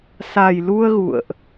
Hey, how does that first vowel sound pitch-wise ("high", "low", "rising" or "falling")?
low